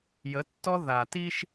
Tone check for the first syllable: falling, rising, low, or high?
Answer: rising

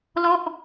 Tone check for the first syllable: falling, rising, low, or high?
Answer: falling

